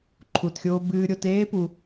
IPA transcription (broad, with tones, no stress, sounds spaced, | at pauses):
ǃʰ u˩ t xʲ oː˨ b ɨː˨ ɾʲ o˨ t eː˥ p u˨